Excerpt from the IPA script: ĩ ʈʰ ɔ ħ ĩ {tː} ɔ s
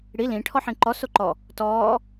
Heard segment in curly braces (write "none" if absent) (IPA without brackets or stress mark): ǃ